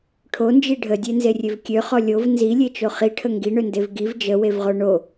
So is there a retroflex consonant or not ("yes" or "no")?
yes